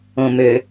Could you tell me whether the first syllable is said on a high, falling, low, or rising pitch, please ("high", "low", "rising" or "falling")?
low